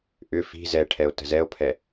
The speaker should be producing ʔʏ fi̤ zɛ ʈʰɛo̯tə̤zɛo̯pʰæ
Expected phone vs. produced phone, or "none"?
æ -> ɛ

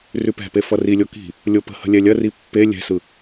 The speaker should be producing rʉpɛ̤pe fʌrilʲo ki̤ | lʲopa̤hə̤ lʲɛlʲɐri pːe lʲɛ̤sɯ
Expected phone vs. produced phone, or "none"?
a̤ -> ə̤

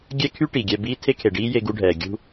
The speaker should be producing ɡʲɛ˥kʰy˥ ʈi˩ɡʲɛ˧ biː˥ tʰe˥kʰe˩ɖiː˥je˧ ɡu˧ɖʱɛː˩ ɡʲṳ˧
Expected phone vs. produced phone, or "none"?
none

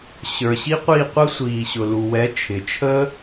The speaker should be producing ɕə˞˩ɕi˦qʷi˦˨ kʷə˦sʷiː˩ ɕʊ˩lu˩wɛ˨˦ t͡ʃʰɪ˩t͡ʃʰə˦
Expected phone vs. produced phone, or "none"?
kʷ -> qʷ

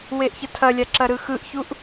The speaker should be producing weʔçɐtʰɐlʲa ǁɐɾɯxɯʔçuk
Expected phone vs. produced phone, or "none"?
k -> ʔ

